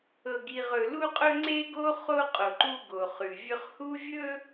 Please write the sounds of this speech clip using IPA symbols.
ɤ˨ ɡ i˨ ʁ ɵ˨ l u˦ qʼ ɵ˦ ŋ͡ǀ e˦ ɡ o˦ χ o˦ qʼ o˨ ǃ u˦ ɡ o˨ χ ʉ˨ vʲ ɵ˦ χ h u˦ vʲ ɵ˦

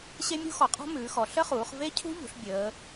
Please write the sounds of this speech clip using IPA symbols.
ɕ e˦˥ mʲ ṳ˦˥ x ɔ˩˧ qʼ ɔ̤˦˥ m ʉː˩˧ x ɔ˩˧ ɬ ə˦˥ χ uː˩˧ χ v e˦˥ cʰ ṳ˦˥ ʎ ṳ˩˧ ɬ bʲ əː˩˧

